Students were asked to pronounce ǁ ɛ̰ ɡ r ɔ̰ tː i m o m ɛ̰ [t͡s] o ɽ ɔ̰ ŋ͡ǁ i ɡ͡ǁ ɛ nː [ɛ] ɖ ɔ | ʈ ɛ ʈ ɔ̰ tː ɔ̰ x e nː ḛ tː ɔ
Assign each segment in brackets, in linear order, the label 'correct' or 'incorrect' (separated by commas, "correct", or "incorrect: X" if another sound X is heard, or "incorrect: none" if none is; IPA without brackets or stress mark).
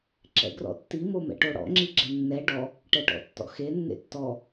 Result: incorrect: ʈ, correct